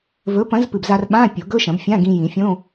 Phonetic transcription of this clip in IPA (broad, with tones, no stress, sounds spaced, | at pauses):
v ɵ˨˥ p ɐ̃˨˥ z p ɨ˨˩ b z a˧ r ɓ ã˧˥˧ pʲ o˨˩˦ ɡ ɵ˧˥˧ ʃ ɐ̃˨˩˦ b fʲ ã˧˥˧ ɡ ĩ˧ j ĩ˨˩˦ fʲ õ˧˥˧